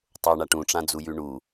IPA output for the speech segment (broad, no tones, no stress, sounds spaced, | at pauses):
tˤ o ɳ a ʈ ũ ʈ͡ʂ ã d͡z u j ʉ ɳ u